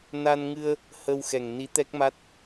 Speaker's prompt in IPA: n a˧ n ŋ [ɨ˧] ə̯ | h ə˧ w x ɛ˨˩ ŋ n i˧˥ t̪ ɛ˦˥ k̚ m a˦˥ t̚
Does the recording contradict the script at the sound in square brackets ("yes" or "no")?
no